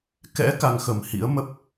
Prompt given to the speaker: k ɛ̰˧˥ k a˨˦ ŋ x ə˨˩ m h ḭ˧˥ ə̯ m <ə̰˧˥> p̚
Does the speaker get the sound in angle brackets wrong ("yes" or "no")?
yes